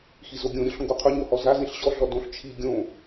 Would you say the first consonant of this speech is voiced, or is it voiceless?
voiceless